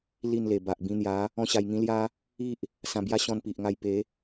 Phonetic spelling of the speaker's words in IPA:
li˥˧nle˨˩ba˨ʔ bĩ˧n̪ja˨˦ | ɔ̃˦ɕa˧jŋĩ˦ lja˦ | i˦ʔ | sã˧bja˦ ɕɔ̃˧npi˨ʔŋa˧j pe˨˦

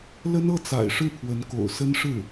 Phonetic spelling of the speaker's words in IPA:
lə˥nɤ˥˩t͡sa̰˨˩ɪ̯ ʂɻ̩˥˩pʰwə˧˥nko̰˨˩ʊ̯ sə˥nʂɻ̩˥˩

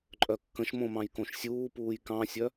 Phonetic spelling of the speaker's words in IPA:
ǃʼœkːə̃ʃmõmɑ̃j kõʃsʲuːpuːj kɑ̃sʲœ

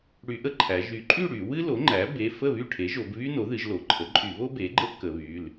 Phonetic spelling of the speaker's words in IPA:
ɽy˧˩˧ʔə˥ǃʰæ˩˧ ʒy˩˧ǃʼy˥˨ ɽy˧˩˧ wɨ˥lo˩˥ŋ͡ǃæ˩˥ be˩˧˩ fə˥˨βy˥˨ʈʰe˩˥ʒo˩˧b βy˥no˩˥ðɨ˩˧ʒ lo˩˧ǃʰə˩˥ ǃʼy˧˩˧βo˥ be˩˥ɡ͡ǃə˥ʔ kə˩˧βy˩˧˩l

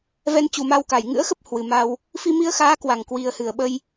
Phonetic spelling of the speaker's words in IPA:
vɛ˧nt͡ɕu˨˩ma˧wka˧˩j ŋɨ̰˧˥ə̯xə˦˥p̚ hwɨ˨˩ma˧w | fi˧mi˧ə̯xaː˨˦ kwa˧˩ŋkwi˨˩ə̯hɨ˧˩ə̯ɓə˧j

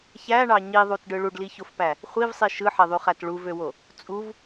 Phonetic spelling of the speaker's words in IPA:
çæɳɑ ɲiðˤutɖɯ ɭuɖliçofpæ | χʷivsˤi ʃɯħeðˤyχæt ɭuvøwo | t͡sʼuv

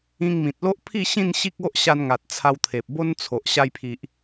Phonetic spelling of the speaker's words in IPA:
ĩ˧ŋmĩ˨t̚lo˦ʔpʰi˥˧ ɕĩ˥˧n ɕi˦k̚o˦ʔɕa˧nŋa˨t̚ t͡sʰa˧w t̪ʰe˨p̚bo˦nt͡sʰo˨ʔ ɕa˧jpʰi˨ʔ

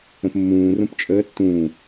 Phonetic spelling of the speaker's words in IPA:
ə̃pmːũː rũpt͡ʃʼəː tːũː

